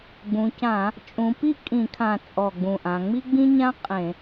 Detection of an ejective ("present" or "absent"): present